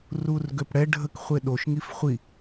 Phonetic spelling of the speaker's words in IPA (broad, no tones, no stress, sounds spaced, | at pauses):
r u r ɡ ø p ɽ ɛ ɖʱ ə k χʷ e ɗ o ʃ ŋ i f χʷ i